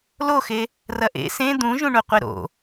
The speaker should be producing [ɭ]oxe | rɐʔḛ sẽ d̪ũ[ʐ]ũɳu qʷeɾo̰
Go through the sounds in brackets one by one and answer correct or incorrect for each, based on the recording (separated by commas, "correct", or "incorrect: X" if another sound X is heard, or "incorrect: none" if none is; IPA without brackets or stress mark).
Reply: incorrect: l, incorrect: ʒ